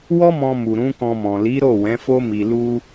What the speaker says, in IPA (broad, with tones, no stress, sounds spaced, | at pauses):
w ɔ˦ m ɔ̃˧ m u˨ ɾ ũ˨˦ k ɔ̃˧ m ɔ̃˨ l i˨˦ ɾ o˦˨ w ɛ̃˨˦ f o˦ m i˧ l u˦